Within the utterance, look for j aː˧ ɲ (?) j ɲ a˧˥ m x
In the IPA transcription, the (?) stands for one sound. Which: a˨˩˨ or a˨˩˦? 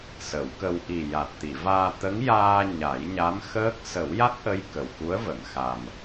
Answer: a˨˩˦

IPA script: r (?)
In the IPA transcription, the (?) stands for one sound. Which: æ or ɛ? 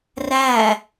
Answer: æ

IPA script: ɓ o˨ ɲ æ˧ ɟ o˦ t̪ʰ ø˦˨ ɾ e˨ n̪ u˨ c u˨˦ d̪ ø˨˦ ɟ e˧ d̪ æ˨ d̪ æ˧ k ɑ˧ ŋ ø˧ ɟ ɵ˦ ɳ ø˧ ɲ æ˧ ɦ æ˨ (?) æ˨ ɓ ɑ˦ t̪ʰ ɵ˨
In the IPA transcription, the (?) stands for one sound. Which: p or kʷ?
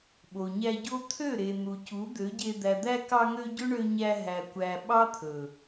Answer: kʷ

